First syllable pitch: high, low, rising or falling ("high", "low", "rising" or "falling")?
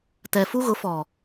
low